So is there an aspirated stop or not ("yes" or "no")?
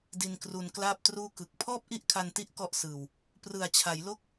yes